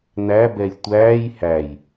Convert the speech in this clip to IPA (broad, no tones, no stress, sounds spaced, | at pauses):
n æ b ɛ j tʷ æː j h æ j